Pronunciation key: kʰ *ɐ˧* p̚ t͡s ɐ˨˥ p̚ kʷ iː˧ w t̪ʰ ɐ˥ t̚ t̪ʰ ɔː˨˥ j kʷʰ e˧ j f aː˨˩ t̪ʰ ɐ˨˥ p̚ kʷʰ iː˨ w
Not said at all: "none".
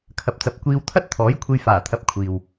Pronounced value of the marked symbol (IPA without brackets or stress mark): ɐ˨